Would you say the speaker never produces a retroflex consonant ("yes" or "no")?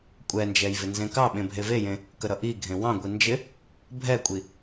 yes